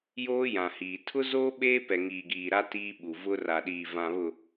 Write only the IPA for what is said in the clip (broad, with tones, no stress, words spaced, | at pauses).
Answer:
joː˦jã˨hiː˨ tʰʊ˦zoː˦ ɓeː˦pɛ˨ŋiː˨ɡiː˨ ɾa˦ tiː˦ɓu˨ vʊ˦ ra˨ɗiː˨vã˨βʊ˨